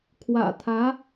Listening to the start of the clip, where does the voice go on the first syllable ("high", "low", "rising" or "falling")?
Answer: low